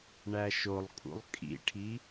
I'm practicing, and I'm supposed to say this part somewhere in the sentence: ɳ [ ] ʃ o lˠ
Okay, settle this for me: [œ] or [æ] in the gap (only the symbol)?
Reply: æ